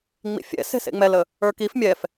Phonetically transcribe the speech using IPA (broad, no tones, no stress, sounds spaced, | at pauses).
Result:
ŋ͡m ḭ fʲ ɛ̰ s e̤ s ḛ ŋ͡m ɛ l ə | ə˞ k i f mʲ ɛ f